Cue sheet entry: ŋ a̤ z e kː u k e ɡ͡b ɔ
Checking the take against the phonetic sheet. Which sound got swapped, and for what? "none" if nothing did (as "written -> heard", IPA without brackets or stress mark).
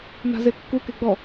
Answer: ŋ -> n